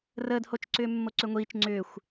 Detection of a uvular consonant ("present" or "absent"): absent